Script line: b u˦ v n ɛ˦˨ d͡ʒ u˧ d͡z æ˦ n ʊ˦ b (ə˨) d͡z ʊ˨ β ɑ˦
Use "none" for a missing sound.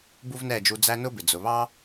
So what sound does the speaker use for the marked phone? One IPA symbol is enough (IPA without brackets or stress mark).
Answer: ɪ˨